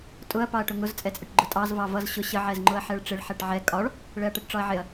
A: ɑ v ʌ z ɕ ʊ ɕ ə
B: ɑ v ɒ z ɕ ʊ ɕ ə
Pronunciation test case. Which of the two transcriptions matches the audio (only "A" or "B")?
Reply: A